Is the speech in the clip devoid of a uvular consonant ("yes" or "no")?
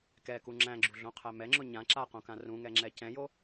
no